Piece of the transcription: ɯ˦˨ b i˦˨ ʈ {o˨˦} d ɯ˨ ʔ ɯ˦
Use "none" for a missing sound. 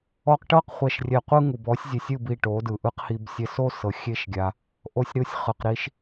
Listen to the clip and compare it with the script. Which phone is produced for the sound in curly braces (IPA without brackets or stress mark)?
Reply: o˨˦